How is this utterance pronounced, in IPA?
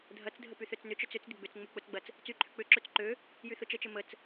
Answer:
dʱ ɐ t͡s dʱ ə p y θ ø t͡s n ʏ t͡ʃ œ t͡s ʏ t͡s d ɪ ɡ͡b ʏ t͡s ŋ͡m ʊ k͡p ʊ t͡s ɡ͡b ɐ t͡s | t͡s y ǃʰ ʏ k͡p ʏ ǁ ø t͡s ǃ ø | j y θ ʊ t͡ʃ ə t͡ʃ ə m ə t͡s

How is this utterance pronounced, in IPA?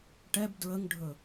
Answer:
ʈ ɛ b d ɹ ə ŋ ɖʱ ɵ

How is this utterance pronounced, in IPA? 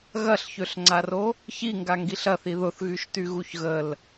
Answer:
ɣ ɐ ɬ ç ø ɬ ŋ͡ǀ a r o | ç i ŋ ɡ a ŋ ɡ i ɬ ɐ θ i ð ʊ θ ɣ y ʃ t y ɣ u ç ɣ ə l

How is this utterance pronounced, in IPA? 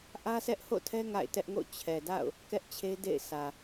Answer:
ʔ ä˦ sʰ ɛ˦ ʔ h o̰˦˨ tʰ ɛ˦ ŋ a̰˦˨ ɪ̯ t ɛ˦ ʔ ŋ o̰˦˨ t͡ɕʰ ɛ˨ d a̰˦˨ ʊ̯ | k ɛ˦ ʔ t͡ɕʰ e˦ d ḛ˦˨ ɪ̯ sʰ ä˨

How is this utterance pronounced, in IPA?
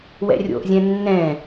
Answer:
w ɛ̰ rʲ o̰ ʔ zʲ ɛ̃ nː ɛ̃

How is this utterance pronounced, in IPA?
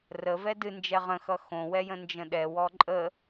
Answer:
r ə v ɛ d ɨ n d͡ʒ ɛ ʁ ə̃ x ʌ x õ w ɛ j ə̃ n d͡ʒ ə̃ ɗ ɛ w ɔ ǃʼ ə

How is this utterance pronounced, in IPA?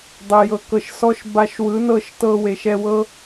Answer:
dˤ e˨ j ɤ˨ k ɤ˨ ʃ s ɔ˧ ʃ b a˧ ʃ w ɯ˨˦ n ɤ˦˨ ʃ t ɤ˧ w e˨ ʃ ɛ˧ w ɤ˦

